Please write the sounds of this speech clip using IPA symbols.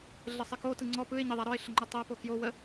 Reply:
ɮ ɘ sˤ ɘ k o t ɯ ŋ͡ǀ ɔ p ɯ ɪ̯ ɲ ɘ ðˤ a ɾ ɔ ɪ̯ ɬ ə ŋ͡ǃ ɯ tˤ æ p o k j o w ə

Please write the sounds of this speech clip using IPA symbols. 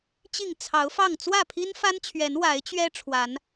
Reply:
t͡ɕ i˥˨ ŋ t͡sʰ ɑ˨˦ ʊ̯ f ɑ˥˨ ŋ t͡s w ä˥˨ pʰ i˦ n f a˦ n t͡ɕʰ ɥ ɛ˨˦ n w a˨˦ ɪ̯ t͡ɕ ɥ ɛ˦ ʈ͡ʂʰ w a˨˦ n

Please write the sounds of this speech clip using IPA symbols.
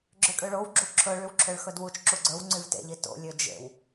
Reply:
ɡ͡ǁ ø kʼ ø ɭ o w ɡ͡ǁ u ǁʰ ɵ ɭ y w ǁʰ ø ɭ x ɵ d w u t͡ʃ ǁ u ɡ͡ǀ ɵ w ŋ͡ǀ y v t ḛ ʎ i t o̰ lʲ ø d͡ʒ ḛ w

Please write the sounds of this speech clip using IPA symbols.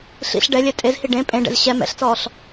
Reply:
ɬ ḭ ɬ ɖ ɛ lʲ ɛ tʼ e z h i ɖ ẽ pʼ ẽ ɖ ɛ̰ z ɕ ɛ m ɛ̰ ɬ t͡s ɔː ɬ

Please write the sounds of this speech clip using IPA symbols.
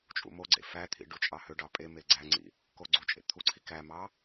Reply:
t͡ʃʼ ṵ m o ɡ͡ǀ ḛ f æ t̪ʰ ḭ ɖ u t͡ʃʼ ɑ h ø ɖ ɑ pʼ e m e ɡ͡ǀ æ ŋ͡ǀ ḭ | k o ɡ͡ǀ u t͡ʃʼ ḛ t̪ʰ u ǀʰ i k æ m ɑ

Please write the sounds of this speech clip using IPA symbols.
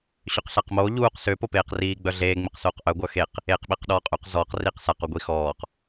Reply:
ɕ ø q ɬ a q m oː ʎ uː q s ø p o p eː q r iː ɡ͡b œ ɮ eː ŋ͡m i q s oː q ʔ œ ɡʷ œ x e q | eː q ɓ e q ɗ ɔː qʼ ø q z ɔː q r iː q s a q o ɡʷ i x ɔː q

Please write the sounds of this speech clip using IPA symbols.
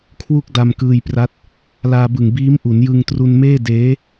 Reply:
kʰ w u˥˩ k̚ d a˧ m k ɯː˧ j p r a˦˥ t̚ | l aː˧ b ɯ˨˩ ŋ b iː˦˥ m ʔ u˩˦ n j ɯ˧ ŋ t r u˧ n m eː˥˩ d eː˦˥

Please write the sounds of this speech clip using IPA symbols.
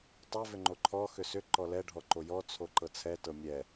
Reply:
tˤ ɛ v ʏ ŋ͡ǃ o ǃʰ ɔ x ʏ s ʏ ǃ ɔ l ɛ ɖʱ ɔ ǃ o j ɔ t͡sʰ o ǃ ɤ t͡sʰ ɛ t ɤ mʲ ɛ

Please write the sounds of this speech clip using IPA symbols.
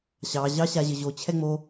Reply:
ɕ ɑ ʑ ɑ ɕ a ʑ ə ʑ o t͡ɕʰ ɛ ŋ͡m o

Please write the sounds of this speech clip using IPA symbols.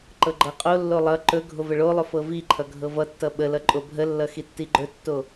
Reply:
ǃ ɤ ɡ͡ǃ ɤ qʼ o lː o lˠ ʌ ǃ ɵ ɡʱ o v ə ɭ o lˠ ɵ f ɤ v i ǃʰ ʌ ɡʱ ɤ v ʌ tː ʌ ɓ ə l ʌ ǃʼ o bʱ ə lː ʌ x i tː i ɡ͡ǃ ɵ tː o

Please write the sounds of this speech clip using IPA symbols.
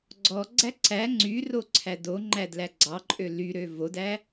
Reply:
ɡ͡ǀ ɔ ɡ͡ǀ æ ǀ æ ŋ͡ǀ y r o ǀʰ æ d o ŋ͡ǃ æ d l æ ɡ͡ǀ ɑ ǃʼ ø l y ɾ ø v o d æ

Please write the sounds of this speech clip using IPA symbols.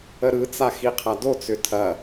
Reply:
ə ɾ ɯ t͡s a x i qʰ a d o t͡s ʏ tʰ ɐ

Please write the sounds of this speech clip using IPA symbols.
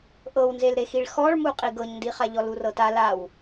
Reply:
ʔ ɤ w n z e l ɾ e x i ɭ x ɔ ɭ m u qʼ i ɡ ɤ ɲ n d i χ a ʎ ɔ l u r ɤ t a l a w

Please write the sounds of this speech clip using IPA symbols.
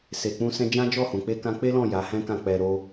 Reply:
s e˨ k͡p ũ˧ s ɛ̃˧ d͡ʒ ã˦ d͡ʒ ɔ˦˨ h ũ˨ k͡p e˧ k ã˧ k͡p e˦ l ɔ̃˦˨ j a˨˦ h ɛ̃˦ k ã˦˨ k͡p ɛ˧ ɾ o˦

